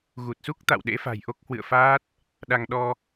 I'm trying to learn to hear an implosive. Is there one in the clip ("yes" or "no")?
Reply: yes